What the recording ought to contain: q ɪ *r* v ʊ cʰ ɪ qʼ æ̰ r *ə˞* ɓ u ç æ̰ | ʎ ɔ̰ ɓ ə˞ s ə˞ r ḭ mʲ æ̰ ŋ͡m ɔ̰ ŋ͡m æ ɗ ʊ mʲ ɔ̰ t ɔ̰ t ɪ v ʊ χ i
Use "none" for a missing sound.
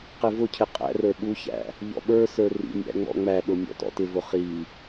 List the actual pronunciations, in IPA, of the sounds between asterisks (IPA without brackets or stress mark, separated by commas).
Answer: none, ə˞